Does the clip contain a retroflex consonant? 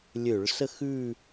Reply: yes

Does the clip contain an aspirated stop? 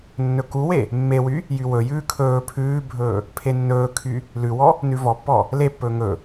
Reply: yes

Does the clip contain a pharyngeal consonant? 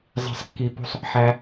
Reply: yes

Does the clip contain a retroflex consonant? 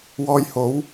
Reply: no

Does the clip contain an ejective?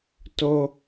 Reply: no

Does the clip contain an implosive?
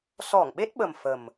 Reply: yes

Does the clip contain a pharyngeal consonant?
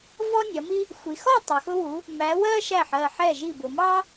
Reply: yes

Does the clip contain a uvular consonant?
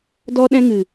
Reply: no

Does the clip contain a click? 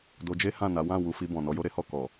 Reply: no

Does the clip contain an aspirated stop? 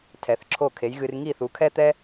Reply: yes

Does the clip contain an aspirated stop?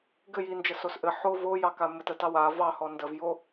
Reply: no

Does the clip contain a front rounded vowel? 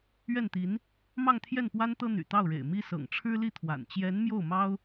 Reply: yes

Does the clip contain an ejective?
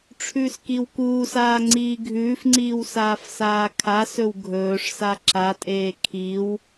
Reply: yes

